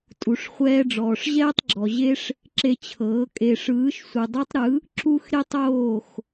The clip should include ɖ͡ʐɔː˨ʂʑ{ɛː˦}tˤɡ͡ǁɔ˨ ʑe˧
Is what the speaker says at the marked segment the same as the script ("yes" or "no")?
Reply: yes